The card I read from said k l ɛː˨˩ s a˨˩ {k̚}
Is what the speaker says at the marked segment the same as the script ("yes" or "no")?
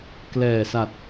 no